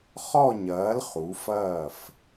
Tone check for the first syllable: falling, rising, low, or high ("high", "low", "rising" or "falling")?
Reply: falling